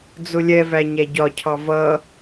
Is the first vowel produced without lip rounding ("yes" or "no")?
no